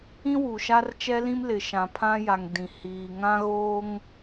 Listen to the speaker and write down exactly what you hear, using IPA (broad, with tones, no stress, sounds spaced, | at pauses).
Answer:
ĩ˦ w u˨ ʃ a˦ r t͡ʃ ɛ˦ l ĩ˦ m l ɪ˨ ʃ ã˨ pʰ ã˦ j a˨ ŋ d ĩ˨ h iː˨ ŋ ã˦ ɣ oː˦ ŋ